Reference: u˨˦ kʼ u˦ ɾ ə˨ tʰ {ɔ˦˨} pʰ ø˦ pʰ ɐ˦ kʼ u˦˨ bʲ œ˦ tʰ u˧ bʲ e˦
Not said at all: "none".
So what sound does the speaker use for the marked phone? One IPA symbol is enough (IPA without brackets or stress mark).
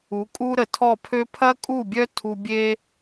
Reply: ɔ˦˨